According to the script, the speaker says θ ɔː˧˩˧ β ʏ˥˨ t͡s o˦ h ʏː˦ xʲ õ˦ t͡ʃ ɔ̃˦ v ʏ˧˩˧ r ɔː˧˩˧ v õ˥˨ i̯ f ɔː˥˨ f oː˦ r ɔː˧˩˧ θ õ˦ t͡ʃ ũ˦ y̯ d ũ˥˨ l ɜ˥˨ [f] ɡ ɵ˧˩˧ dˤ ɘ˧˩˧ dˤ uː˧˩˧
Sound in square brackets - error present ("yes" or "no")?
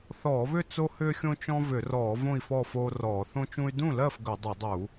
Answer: no